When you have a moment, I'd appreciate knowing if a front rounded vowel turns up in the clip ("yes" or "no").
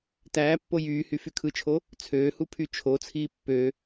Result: yes